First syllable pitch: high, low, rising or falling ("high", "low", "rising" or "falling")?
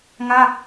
high